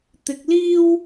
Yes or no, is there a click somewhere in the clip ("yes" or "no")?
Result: no